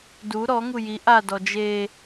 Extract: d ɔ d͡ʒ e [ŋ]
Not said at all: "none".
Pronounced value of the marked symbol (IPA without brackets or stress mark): none